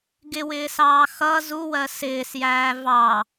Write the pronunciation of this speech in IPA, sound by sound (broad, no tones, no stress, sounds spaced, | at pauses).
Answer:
ɡ ɪ w ɪː s ɑː x ʌ z u w ɜ s ɪː s j æː v ɑ